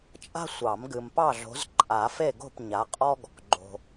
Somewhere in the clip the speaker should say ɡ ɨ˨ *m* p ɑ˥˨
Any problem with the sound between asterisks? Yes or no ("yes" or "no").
no